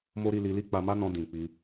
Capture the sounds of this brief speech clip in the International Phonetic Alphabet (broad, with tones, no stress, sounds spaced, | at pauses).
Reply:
m o˦ ɾ i˧ l i˧ l i˦ k͡p a˧ m a˦ n ɔ̃˧ d ĩ˨ k͡p i˧